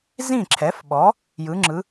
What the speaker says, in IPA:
z ĩ˥˩ ǁʰ ɛ˩˥ f ɓ ɔ˩˥ | j ɯ˩˥ ŋ͡ǁ ɯ˩˥

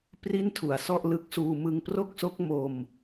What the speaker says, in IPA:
p r i˥˩ n tʰ u˨˩ a̯ s ɔ˥˩ ʔ l ɯ˦˥ k̚ s uː˧ m ɯ˧ ŋ p r o˥˩ k̚ s o˦˥ k̚ m o˧ m

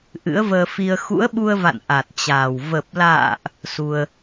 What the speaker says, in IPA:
ʔ ɨ̰˧˥ ə̯ v əː˧ f i˧ ə̯ x ṵ˧˥ ə̯ ɓ u˧ ə̯ v a̰˧˨ n ʔ a˨˩ t̚ t͡ɕ aː˨˩ w v ə˨˩ p̚ l a̰ː˧˨ ʔ | s u˧ ə̯

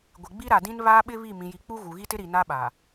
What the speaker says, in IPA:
ɡʷ ɪ˨ ɡ͡b i˦ ɾ a˨ d ĩ˦ n β aː˦ ɓ ɪ˦ β i˦˨ m ĩ˨ j i˨ k͡p u˦ ɣ u˨ ɣ i˦ t ɪ˦ ɾ i˨ n a˦ ɓ a˨

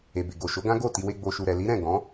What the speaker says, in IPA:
e˨ b e˨ ɡ o˨ ʃ o˨˦ ɡ ã˦ ɡ o˦˨ t i˧ w e˧ ɡ͡b o˨ ʃ u˨ ɾ ɛ˨ l i˨˦ ɾ ɛ̃˦˨ ɡ ɔ̃˨˦

